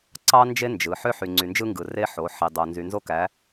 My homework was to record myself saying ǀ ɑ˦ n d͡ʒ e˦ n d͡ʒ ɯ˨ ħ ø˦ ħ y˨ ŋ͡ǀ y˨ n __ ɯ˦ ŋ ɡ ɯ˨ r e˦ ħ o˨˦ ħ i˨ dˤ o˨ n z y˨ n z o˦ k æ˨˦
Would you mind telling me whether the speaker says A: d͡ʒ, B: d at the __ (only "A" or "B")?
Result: A